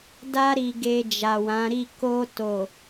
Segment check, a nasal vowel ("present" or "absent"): present